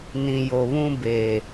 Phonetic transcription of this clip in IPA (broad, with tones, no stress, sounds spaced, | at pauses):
n ĩ˨ j o˨ β ũ˦ b e˨